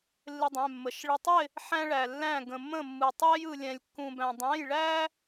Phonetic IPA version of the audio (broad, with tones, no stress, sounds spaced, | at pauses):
lː ɪ˥ dˤ ɛ̃˧˥˧ mː ə˧˥˧ ʃ ɭ ɪ˧ tˤ ɪ˥˧ | ħ æ̃˥ ɭ æ˧ lː æ̃˥˧ ɡ ə̃˧ mː ə̃˥˧ mː ɯ˧ tˤ æ˥ j ɯ˧ lʲ ɛ̃˧ lʲ kː ũ˧ b æ̃˧ dˤ æ̃˧˥˧ j ɭ æ˥